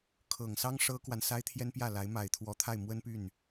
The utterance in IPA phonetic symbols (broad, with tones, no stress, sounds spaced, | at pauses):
kʰ ɤ˨˩ ŋ s ɑ˥ ŋ ʂ ɤ˥ k w a˨ n s a˥ ɪ̯ t̪ʰ j ɛ˥ n p j ä˥˩ l a˧˥ ɪ̯ m a˨˩ ɪ̯ t̪ʰ w ɔ˧˥ t̪ʰ a˥˩ ɪ̯ m w ə˥ n p y˥˩ n